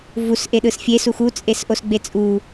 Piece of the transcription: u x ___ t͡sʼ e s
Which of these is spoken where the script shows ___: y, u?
u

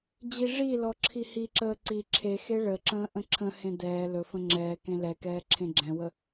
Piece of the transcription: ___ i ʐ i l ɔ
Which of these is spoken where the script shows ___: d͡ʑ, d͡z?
d͡ʑ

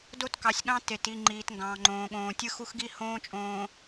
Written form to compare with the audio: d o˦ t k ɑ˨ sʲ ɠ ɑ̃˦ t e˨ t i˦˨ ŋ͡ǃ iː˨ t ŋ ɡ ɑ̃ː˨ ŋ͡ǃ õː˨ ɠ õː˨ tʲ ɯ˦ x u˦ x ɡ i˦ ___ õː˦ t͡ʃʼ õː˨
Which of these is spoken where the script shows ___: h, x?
h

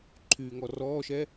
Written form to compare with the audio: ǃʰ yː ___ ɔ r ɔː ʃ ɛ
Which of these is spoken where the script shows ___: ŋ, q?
ŋ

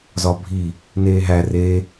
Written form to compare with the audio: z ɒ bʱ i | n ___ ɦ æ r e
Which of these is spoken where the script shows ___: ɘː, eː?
eː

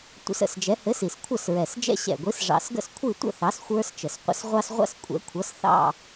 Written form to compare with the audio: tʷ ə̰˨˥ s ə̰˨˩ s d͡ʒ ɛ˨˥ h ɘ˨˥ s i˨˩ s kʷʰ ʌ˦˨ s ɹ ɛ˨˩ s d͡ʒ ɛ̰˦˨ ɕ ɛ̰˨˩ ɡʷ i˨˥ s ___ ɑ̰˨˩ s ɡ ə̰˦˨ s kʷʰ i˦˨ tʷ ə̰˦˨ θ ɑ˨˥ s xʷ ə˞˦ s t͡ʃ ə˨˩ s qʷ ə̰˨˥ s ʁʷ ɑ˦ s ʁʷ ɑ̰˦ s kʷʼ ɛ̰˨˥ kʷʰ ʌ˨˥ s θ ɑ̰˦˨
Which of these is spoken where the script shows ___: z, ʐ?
ʐ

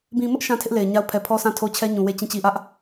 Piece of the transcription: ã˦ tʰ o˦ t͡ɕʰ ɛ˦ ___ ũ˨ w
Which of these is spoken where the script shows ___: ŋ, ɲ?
ɲ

